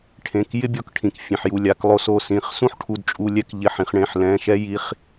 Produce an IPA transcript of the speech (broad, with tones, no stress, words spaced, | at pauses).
ʈʰẽ˩˧˩kjɪ˦bʲɔ˩˧˩kʈʰĩ˩k fʲẽ˩ħju˧˩lʲa˩˧˩klˠo˧˩ so˧˩sĩ˩˧˩χ sũ˦ħʈʰu˩˧˩dt͡ʃʼu˩˧˩lʲɛ˦k ʎɪ˩˧˩ħĩ˩χɳẽ˧˩ħ lɛ̃˩˧˩ʃɛ˦ ji˩˧˩χ